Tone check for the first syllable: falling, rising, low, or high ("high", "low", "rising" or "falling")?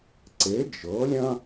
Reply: rising